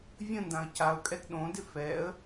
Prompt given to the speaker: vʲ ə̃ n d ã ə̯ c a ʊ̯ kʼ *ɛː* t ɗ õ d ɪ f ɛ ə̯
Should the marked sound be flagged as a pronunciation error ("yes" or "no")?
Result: yes